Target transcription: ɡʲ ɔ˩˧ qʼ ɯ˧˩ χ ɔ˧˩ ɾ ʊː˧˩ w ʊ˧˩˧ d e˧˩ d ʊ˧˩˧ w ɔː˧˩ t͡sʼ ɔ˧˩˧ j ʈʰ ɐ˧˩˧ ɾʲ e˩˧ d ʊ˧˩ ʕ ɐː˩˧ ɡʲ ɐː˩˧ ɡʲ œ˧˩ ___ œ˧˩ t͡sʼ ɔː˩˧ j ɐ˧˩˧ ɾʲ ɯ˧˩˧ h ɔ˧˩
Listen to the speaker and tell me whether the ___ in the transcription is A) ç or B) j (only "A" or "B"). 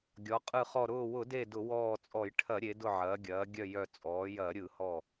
B